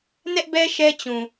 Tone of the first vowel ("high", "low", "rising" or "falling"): high